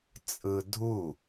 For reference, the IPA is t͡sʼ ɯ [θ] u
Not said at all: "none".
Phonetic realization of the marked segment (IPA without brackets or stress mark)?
dʱ